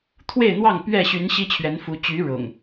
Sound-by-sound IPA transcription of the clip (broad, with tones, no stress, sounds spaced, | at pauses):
t̪ʰ w e˥˨ ɪ̯ n̪ w ɑ˥˨ ŋ p ɥ ɛ˥˨ ɕ y˨˦ n ɕ i˦ t͡ɕʰ ɥ ɛ˨˦ n f u˨˦ t͡ɕ y˨˦ ɻ ʊ̰˨˩ ŋ